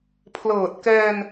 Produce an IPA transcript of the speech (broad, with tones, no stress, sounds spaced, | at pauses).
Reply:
pʰ l ɤː˨˩ t̚ k ɛː˧ n